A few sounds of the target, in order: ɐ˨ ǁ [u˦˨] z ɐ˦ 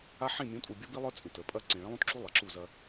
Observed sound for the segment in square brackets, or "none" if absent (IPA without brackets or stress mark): u˦˨